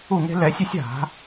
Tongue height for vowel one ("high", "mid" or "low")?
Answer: high